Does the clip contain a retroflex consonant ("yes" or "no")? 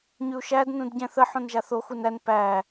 no